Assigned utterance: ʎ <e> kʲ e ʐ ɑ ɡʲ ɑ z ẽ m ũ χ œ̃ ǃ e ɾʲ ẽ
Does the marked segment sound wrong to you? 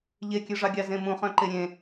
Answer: no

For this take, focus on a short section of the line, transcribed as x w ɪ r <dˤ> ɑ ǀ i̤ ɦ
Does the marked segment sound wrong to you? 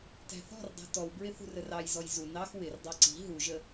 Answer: no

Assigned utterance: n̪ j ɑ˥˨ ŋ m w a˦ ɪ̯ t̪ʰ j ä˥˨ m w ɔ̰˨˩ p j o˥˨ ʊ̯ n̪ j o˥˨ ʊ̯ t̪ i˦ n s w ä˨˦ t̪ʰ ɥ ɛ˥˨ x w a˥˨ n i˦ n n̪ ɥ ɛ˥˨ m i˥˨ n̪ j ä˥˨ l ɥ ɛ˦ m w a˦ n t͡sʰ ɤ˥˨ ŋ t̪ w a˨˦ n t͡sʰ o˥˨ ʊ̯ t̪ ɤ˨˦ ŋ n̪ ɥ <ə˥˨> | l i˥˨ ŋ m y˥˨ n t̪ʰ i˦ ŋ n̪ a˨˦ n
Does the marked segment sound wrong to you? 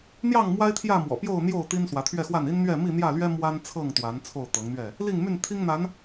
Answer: yes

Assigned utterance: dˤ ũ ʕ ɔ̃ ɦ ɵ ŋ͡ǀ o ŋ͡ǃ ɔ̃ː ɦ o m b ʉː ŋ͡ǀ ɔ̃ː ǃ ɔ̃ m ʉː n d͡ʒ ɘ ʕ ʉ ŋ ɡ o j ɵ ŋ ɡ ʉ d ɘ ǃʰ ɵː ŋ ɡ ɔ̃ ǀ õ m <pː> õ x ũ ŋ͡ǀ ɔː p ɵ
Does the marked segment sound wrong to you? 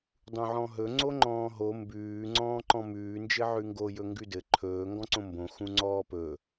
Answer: yes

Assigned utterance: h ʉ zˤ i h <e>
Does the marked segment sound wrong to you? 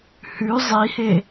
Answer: no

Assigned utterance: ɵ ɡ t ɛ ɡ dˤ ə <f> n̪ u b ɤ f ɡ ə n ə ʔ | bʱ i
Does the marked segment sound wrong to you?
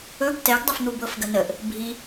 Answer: no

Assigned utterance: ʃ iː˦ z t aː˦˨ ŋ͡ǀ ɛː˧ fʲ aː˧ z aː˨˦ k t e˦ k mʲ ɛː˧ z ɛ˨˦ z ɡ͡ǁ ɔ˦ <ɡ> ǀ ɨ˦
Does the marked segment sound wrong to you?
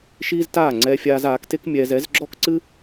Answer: yes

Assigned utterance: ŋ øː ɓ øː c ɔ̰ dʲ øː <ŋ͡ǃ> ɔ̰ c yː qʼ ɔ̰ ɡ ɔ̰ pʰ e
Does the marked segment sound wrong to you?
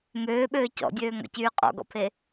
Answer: yes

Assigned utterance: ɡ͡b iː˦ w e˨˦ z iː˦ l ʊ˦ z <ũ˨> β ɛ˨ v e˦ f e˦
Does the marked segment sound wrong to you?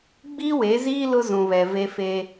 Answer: no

